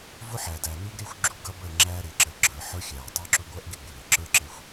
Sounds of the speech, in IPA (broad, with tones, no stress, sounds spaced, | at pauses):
v ʊ˦ ħ æː˨ d æ˨ n u˦ ɡ ɾ ɪː˦ xʷ ɡ͡ǁ u˦ ɡ ʌ˦ b əː˦˨ ŋ͡ǁ æː˦ ɾ ɪː˨ ǁ əː˨ ɡ͡ǁ ə˞˨ ħ ə˞˦ xʲ æː˨ tˤ ə˞˦ ǁ ʊ˦ ɡʷ ʌ˦ ʔ ɡ ɪ˦ ɡ͡b ɪ˨ w ɪː˨ ǁ ə˞˦ ǁ ɪ˨ xʷ